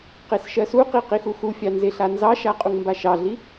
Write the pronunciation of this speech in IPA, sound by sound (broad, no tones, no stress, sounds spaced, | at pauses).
q e s ʃ ɜ s u q i q i x u x u fʲ ɑ n z e ɬ a n z ɑ ʃ a qʼ u ŋ m b a ʃ ɑ ɮ i